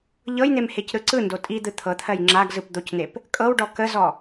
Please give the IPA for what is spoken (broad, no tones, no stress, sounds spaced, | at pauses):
ʎ ɤ j n̪ e m h e c ɾ ɯ ǀ ɯ n d o tʼ i d̪ ɯ t̪ʰ ɤ t̪ʰ ɜ j ŋ͡ǁ a ɡ z ɯ p d̪ o c n̪ e p | kʼ ɤ w ɖ ɔ k ə z ɔ